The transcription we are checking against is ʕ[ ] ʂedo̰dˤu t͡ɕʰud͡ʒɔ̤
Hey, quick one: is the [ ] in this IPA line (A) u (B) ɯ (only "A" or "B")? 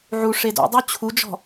A